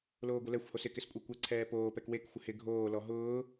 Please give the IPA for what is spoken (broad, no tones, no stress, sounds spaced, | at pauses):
l oː ɡʷ ɪ l ɛ xʷ h o s ɪ k ɪ s kʷʼ e kʷ ɛ ǀʰ ɛː p oː p ɛ k w e k xʷ ɪ h ɪ ɡʱ oː l ɔ ɦ ʊː